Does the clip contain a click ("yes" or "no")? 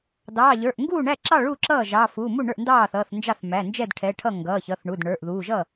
yes